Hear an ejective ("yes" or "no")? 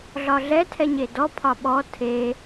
no